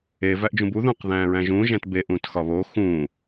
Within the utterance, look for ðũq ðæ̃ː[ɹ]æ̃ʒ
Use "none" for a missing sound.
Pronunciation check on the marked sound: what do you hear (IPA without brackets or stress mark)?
ɹ